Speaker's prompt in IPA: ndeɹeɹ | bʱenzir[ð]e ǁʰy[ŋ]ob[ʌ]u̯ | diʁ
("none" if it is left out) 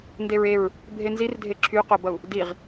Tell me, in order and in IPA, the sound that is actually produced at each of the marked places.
dʱ, q, ʌ

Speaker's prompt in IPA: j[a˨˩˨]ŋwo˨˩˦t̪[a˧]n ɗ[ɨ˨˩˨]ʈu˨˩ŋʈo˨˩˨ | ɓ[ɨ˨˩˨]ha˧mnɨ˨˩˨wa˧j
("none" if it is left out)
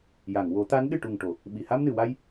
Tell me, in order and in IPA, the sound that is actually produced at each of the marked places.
a˨˩˨, a˧˥, ɨ˨˩, i˨˩˨

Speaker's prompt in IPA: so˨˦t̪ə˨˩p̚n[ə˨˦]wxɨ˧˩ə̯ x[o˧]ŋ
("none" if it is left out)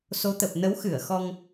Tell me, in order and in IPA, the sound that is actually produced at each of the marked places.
ə˨˦, ɔ˧

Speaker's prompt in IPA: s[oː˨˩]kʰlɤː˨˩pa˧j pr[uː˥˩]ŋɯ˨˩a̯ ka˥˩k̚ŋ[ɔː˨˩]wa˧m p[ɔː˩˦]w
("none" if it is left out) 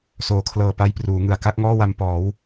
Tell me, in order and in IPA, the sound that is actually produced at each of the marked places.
oː˩˦, uː˩˦, ɔː˥˩, ɔː˩˦

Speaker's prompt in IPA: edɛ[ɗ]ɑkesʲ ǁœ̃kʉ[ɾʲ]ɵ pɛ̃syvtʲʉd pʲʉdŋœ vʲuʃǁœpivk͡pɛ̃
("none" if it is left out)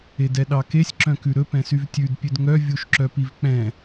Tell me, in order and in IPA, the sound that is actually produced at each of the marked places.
ɗ, ɾ

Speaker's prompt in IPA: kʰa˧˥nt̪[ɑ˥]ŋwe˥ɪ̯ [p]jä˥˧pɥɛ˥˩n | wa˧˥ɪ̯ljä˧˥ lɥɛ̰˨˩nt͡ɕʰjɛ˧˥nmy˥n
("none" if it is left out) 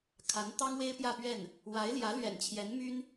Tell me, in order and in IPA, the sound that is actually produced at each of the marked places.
ɑ˥, p

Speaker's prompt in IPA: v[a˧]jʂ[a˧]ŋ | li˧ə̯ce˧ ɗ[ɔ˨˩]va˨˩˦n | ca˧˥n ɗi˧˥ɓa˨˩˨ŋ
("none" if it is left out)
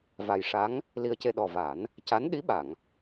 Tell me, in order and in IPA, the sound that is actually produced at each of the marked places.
a˨˩, a˧˥, ɔ˨˩

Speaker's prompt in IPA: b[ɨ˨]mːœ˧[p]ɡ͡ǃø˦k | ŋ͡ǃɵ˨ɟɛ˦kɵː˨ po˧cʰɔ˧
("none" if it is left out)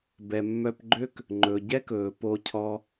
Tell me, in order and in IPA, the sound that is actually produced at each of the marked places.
ɛ˨, p

